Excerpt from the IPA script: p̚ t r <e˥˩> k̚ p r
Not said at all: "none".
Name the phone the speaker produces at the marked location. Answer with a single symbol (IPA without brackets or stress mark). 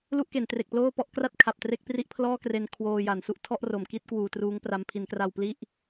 e˥˩